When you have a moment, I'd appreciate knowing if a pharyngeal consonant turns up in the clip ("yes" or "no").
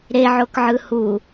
yes